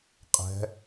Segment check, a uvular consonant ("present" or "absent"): present